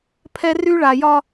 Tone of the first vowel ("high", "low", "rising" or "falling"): high